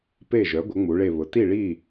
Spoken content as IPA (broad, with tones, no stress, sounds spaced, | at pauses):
p e˥˨ ʒ œ˩˥ ɡʷ ə˩˥ ŋ͡m u˩˥ ɭ e˥˨ β ʊ˩˥ t i˥˨ ɭ i˥˨